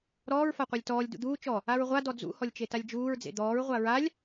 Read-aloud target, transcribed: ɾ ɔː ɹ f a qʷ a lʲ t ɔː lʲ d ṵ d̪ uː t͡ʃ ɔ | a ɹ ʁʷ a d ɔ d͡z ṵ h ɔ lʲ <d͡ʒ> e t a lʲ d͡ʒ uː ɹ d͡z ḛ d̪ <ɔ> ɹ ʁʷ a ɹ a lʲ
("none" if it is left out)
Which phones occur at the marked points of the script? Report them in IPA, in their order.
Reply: t͡ʃ, ɔː

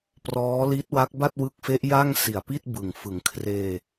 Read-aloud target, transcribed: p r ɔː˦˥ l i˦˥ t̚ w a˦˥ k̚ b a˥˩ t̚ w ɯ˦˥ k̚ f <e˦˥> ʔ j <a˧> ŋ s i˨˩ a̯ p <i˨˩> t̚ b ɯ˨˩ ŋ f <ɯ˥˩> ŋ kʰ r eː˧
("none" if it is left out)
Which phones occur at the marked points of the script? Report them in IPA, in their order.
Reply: e˦˥, a˥˩, i˥˩, ɯ˩˦

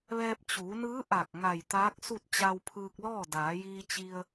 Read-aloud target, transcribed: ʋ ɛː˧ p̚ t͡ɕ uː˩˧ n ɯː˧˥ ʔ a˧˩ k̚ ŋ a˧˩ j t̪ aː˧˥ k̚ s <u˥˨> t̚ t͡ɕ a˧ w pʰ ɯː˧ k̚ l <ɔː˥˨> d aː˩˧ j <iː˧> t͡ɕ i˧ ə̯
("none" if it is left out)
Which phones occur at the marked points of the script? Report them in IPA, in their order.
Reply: u˥˨, ɔː˥˨, iː˧

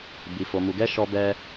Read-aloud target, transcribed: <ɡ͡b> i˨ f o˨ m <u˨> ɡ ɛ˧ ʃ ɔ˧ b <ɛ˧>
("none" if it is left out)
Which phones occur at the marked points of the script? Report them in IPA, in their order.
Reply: b, u˨, ɛ˧

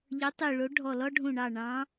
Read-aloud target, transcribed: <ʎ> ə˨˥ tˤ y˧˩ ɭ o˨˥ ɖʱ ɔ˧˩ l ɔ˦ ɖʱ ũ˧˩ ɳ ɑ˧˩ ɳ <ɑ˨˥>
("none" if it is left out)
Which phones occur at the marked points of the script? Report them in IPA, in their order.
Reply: ʎ, ɑ̃˨˥

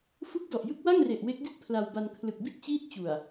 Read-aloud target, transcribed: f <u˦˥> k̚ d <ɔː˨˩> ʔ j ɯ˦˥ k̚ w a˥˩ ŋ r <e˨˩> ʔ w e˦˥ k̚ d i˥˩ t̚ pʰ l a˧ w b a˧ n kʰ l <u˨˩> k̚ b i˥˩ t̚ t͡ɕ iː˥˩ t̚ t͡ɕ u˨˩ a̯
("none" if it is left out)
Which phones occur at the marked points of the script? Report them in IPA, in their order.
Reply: u˦˥, ɔ˨˩, e˨˩, ɯ˨˩

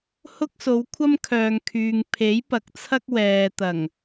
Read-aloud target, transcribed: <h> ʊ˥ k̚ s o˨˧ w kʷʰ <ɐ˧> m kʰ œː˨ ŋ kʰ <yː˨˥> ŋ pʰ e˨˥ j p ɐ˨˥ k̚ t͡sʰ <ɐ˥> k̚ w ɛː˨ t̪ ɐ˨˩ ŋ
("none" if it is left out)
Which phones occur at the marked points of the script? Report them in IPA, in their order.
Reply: h, ɐ˥, yː˨, ɐ˥

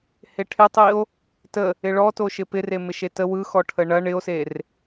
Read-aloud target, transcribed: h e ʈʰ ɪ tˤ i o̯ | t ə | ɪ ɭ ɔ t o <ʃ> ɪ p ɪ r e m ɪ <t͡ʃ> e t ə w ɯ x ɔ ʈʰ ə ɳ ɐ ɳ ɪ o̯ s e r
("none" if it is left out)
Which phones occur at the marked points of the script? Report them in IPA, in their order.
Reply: ʃ, ʃ

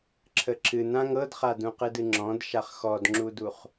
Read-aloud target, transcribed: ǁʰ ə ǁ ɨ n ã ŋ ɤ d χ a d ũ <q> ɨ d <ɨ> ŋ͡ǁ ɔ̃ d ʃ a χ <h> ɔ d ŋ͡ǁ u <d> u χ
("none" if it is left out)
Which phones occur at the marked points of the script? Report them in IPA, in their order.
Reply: q, ɨ, x, d

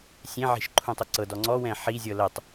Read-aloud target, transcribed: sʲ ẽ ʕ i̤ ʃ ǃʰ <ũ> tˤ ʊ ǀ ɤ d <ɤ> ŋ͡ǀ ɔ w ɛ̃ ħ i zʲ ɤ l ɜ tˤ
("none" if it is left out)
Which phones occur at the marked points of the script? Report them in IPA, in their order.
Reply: ũ, ɔ

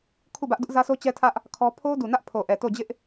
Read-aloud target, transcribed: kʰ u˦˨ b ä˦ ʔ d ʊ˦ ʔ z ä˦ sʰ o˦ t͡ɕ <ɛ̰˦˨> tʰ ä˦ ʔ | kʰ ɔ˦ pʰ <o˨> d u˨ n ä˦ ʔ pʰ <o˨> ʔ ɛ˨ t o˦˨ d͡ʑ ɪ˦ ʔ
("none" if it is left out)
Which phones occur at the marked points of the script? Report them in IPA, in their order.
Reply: ɛ˦, o˦, o˨

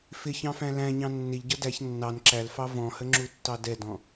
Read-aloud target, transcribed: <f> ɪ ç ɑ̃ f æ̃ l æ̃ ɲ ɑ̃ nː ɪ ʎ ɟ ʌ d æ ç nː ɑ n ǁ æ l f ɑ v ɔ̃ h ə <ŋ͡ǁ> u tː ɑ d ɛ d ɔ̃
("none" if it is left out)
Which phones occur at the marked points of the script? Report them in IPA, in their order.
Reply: f, ŋ͡ǁ

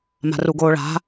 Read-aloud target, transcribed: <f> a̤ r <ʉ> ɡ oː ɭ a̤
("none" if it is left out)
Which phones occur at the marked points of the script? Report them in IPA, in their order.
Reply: m, u

